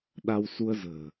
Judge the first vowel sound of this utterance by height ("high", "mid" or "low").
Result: low